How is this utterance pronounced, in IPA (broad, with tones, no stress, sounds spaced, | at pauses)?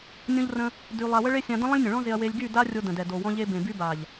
nʲ õ˦ ʎ r ə̃˦ | d y˧ lˠ a˧ w ə˦ ɭ e˦ sʲ ã˧ d ə̃˦ lˠ ə̃˦ lʲ nʲ ə̃˨ ɭ ɔ̃˦ z e˧ ɐ̯ w e˧ lʲ ɡ y˦˨ d a˦ rʲ o˧ d ə̃˨ d ɛ˨ d o˨ w ɔ̃˧ ʎ e˧ b ẽ˨ b y˧ b a˨ ʎ